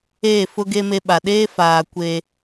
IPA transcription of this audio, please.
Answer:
eː˦˨ f ʊ˦ ɡ e˦ m e˦ ɓ a˨ ɗ eː˦ f aː˨ kʷ eː˨

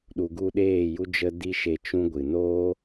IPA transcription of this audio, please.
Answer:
ɗ u˨ ɡ u˧ ɗ eː˦˨ j u˦ d͡ʒ ə˦ d i˦ ʃ e˧ t͡ʃ ũ˦ ɡʷ ɨ˨ n oː˦

